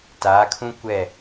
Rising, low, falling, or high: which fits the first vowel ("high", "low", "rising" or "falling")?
rising